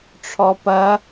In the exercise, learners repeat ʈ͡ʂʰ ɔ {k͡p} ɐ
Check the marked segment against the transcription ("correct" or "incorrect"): incorrect